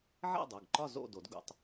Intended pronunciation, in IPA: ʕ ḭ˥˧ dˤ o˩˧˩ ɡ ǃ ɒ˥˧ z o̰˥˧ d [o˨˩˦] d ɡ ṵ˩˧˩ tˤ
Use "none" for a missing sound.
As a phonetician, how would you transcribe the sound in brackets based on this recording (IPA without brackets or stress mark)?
o˨˩˦